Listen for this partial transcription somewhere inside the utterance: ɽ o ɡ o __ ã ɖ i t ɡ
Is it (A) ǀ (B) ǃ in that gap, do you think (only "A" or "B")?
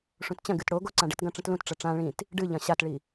A